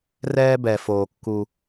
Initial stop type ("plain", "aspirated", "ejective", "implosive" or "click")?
plain